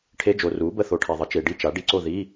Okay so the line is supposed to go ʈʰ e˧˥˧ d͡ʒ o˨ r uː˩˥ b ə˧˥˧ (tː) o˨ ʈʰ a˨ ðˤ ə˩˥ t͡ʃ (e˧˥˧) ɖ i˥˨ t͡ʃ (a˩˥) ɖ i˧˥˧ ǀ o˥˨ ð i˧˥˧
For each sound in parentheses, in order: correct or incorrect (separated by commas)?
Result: incorrect, incorrect, correct